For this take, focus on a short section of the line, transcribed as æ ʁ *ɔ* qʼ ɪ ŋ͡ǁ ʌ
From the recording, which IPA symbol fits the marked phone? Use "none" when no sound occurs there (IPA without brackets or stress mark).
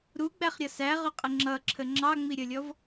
ʊ